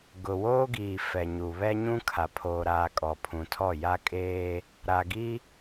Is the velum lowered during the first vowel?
no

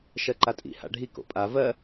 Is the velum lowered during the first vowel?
no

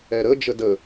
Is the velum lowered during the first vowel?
no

